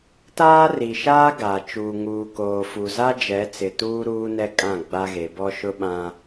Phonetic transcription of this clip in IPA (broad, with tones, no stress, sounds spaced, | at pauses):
t aː˦ r i˨ ʃ aː˦ ɡ a˨ t͡ʃ uː˨ ŋ uː˨ k oː˨ f u˨ z a˦ d͡ʒ ɛ˨˦ t͡s ɪ˨ t uː˦ ɾ uː˦ n ɛ˦ kʼ ã˦˨ ɡ͡b a˦ ɣ e˨˦ b ɔ˦ ʃ ʊ˦ ɓ ã˦